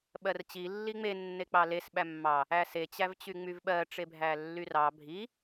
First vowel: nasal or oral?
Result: oral